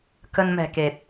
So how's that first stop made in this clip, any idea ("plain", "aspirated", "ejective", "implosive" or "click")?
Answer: plain